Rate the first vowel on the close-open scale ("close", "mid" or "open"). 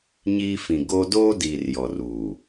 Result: close